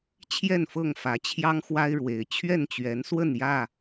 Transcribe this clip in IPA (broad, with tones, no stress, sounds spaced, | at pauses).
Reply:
t͡ɕʰ j ɛ˥˨ n f ɤ˥˨ ŋ f ä˨˦ t͡ɕʰ j ɑ˦ ŋ x w a˦ ɪ̯ ɻ w e˨˦ ɪ̯ t͡ɕʰ ɥ ɛ˥˨ n t͡ɕ ɥ ɛ˨˦ n s w ə˥˨ n j ä˥˨